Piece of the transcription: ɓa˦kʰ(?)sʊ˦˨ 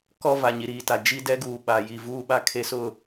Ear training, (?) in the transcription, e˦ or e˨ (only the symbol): e˦